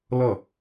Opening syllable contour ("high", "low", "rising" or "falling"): falling